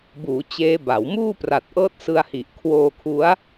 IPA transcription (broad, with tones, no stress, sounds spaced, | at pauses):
b uː˩˦ t͡ɕ eː˦˥ b a˩˦ w m uː˥˩ p r a˨˩ t̚ ʔ ɤː˦˥ t̚ s ɯ˧ a̯ h i˨˩ ʔ kʰ w oː˧ kʰ u˦˥ a̯